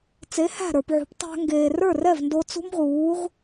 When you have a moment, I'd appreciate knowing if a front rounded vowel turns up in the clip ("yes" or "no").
no